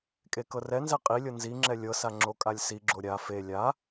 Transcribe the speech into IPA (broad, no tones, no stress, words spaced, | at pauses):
kʼekɤrɛnzɛ qʼilʲɤ nziŋ͡ǁɛ lʲɤsa ŋ͡ǁokʼalʲsiɡ͡ǁo ɾʲa fe lʲa